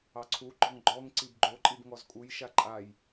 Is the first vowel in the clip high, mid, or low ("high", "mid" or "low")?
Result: low